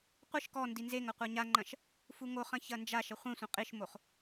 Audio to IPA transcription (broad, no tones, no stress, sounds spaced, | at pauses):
qʷ ɨ ʃ k ɔ n d i n z e ŋ ɐ qʷ a ɲ a ŋ͡ǃ ɐ̃ ʃ | f u ŋ o χ ɐ̃ ç ɐ n d͡ʒ a ʃ ɐ χʷ ẽ sʷ ɐ̃ qʼ i ʃ m o χ